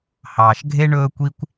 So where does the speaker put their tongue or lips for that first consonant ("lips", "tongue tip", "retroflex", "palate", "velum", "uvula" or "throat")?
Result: throat